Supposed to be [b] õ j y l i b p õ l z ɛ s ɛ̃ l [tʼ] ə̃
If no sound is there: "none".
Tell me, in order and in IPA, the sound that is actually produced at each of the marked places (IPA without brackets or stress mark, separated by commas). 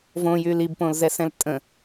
v, tʼ